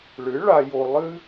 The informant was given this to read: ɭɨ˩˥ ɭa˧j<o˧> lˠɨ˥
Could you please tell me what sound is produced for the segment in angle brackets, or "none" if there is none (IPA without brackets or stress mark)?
o˧